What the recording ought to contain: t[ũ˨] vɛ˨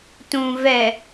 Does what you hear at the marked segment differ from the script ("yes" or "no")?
no